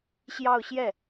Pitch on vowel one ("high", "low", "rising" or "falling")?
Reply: falling